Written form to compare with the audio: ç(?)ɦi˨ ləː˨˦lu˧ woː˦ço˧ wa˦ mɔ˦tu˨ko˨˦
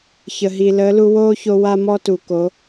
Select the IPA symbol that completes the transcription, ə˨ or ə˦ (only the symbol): ə˨